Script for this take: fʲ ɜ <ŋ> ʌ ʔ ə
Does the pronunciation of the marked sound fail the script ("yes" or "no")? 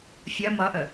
yes